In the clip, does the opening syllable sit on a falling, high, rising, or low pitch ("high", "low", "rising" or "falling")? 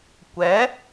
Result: rising